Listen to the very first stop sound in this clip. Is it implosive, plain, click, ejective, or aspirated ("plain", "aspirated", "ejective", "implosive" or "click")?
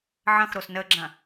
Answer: click